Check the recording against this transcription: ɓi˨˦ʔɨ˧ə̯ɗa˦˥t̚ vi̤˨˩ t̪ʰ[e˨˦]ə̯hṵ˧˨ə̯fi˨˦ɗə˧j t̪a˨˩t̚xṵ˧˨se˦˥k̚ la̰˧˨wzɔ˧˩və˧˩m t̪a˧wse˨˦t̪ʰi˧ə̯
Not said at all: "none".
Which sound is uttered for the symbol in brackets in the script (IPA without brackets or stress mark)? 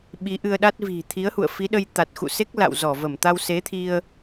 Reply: i˨˦